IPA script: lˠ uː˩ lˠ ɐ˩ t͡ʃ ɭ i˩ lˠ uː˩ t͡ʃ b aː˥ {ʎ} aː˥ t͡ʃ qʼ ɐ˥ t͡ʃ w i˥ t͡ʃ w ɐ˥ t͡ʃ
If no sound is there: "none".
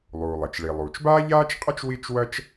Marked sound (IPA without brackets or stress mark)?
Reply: ʎ